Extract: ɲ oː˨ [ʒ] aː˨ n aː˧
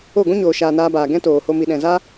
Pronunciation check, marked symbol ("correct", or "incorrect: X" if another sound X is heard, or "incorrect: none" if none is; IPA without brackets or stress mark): incorrect: ʃ